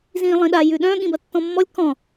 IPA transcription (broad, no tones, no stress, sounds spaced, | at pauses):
z ĩː lˠ ĩ ɗ a j ʉ ɗ œ̃ ɠ ĩ b ɐ tː ɔ̃ mː ɔ lʲ k ɔ̃